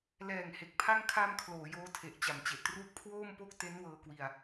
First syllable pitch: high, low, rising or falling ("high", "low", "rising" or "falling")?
low